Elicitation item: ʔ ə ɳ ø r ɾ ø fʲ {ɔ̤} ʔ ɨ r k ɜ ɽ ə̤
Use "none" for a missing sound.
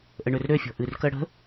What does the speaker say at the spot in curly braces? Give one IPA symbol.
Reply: ɔ̤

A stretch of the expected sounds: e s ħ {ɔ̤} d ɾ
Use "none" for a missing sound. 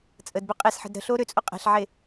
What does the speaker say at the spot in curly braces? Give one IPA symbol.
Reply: ə̤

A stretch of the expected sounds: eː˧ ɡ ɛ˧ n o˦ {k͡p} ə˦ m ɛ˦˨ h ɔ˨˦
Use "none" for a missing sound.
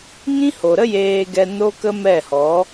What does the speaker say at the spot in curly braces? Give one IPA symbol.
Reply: k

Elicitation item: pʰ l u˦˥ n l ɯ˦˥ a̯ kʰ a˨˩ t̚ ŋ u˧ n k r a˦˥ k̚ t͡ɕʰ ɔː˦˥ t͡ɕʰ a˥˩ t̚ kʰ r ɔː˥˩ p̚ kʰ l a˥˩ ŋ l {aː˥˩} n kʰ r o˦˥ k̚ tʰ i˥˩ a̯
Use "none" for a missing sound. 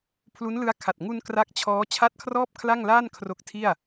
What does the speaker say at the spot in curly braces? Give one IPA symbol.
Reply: aː˥˩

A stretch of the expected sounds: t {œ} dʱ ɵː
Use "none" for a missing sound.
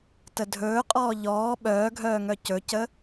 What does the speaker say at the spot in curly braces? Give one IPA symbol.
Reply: ə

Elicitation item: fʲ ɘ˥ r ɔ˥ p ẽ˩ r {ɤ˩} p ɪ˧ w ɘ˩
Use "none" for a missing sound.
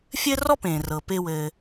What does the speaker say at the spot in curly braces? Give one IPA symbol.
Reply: ɤ˩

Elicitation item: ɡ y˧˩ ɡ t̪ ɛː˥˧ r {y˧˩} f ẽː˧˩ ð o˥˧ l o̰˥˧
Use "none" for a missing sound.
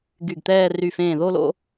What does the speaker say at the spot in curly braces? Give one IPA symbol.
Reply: y˧˩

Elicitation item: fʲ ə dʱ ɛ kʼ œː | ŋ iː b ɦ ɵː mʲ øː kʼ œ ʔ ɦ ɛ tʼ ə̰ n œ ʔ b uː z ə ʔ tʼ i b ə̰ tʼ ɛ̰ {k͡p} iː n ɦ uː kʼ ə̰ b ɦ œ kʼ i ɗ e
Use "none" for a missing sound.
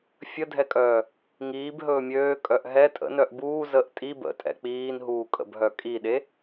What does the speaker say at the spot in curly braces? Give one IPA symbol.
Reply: k͡p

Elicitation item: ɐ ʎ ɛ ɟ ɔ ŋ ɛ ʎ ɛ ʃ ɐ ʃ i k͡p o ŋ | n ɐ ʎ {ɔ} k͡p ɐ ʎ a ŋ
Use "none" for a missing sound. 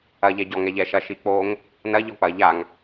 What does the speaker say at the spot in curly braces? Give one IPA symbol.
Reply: ɔ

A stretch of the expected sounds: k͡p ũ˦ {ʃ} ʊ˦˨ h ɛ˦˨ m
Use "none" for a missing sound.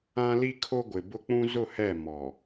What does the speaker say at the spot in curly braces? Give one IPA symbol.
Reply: z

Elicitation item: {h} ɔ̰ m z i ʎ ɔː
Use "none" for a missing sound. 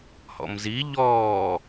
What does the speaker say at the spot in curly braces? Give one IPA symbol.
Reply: h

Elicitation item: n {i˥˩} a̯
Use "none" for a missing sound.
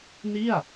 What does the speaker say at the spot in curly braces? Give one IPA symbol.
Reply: i˥˩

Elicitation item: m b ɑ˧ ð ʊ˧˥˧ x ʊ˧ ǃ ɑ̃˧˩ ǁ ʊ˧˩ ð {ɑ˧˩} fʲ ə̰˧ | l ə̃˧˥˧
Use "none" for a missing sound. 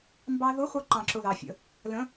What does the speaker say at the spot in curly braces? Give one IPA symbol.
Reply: ɑ˧˩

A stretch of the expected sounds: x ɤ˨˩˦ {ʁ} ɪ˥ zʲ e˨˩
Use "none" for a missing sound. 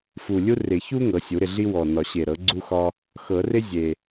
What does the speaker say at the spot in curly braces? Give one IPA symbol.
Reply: r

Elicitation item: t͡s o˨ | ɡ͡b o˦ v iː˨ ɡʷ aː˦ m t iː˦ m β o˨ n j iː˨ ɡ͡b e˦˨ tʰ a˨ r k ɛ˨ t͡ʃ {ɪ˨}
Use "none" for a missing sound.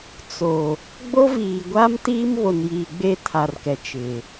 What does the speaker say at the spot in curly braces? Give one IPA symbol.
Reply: ɪ˨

